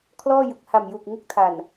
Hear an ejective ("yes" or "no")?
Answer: no